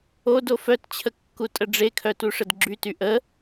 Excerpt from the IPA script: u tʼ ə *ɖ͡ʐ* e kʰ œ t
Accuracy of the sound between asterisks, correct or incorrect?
correct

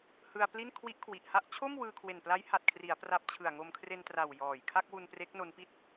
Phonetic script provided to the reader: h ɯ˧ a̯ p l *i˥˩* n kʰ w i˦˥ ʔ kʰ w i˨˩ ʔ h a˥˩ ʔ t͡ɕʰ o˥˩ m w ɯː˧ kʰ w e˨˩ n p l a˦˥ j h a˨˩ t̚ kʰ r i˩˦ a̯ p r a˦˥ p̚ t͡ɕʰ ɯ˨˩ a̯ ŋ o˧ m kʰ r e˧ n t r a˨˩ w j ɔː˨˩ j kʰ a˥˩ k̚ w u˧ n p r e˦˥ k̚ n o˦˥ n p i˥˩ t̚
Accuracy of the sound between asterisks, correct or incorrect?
correct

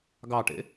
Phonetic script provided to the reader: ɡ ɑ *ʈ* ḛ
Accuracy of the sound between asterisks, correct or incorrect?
correct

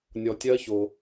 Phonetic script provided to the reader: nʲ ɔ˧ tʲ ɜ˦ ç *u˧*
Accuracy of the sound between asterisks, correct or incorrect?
incorrect: o˧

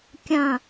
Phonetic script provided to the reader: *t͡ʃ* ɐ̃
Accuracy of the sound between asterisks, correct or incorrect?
incorrect: kʲ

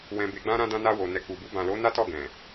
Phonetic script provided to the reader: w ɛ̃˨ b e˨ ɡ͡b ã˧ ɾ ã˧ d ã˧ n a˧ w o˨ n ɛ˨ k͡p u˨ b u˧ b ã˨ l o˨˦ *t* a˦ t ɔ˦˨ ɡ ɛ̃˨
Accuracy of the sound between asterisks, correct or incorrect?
incorrect: n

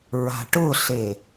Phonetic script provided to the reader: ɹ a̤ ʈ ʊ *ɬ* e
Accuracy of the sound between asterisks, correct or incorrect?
correct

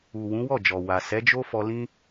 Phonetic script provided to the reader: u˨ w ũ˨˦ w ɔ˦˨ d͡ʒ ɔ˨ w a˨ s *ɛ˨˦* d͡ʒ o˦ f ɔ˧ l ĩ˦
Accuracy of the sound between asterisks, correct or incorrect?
correct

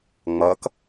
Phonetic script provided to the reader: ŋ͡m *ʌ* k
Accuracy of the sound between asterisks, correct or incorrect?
correct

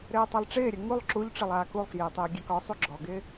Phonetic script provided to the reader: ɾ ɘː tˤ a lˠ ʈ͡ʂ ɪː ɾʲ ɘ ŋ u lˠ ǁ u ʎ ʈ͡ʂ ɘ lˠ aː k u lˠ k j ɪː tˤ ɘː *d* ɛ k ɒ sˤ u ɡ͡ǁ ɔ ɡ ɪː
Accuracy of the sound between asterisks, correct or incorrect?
incorrect: ɡʲ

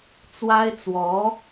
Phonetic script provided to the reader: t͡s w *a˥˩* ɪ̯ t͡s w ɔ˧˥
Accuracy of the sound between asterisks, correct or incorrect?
incorrect: a˥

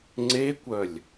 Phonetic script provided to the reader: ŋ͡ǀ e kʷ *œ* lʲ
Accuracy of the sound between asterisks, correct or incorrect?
correct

